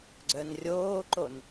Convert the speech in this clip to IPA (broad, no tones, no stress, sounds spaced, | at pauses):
ɡ͡ǀ œ n rʲ oː ǃ o n